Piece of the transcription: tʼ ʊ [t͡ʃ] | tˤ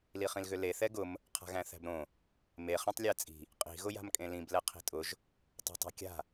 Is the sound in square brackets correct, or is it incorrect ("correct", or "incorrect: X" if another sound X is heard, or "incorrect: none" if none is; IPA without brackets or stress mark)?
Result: incorrect: ʒ